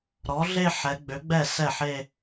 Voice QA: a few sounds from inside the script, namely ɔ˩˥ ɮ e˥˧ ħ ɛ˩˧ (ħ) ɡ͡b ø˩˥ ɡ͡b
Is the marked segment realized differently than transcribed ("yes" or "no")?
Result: yes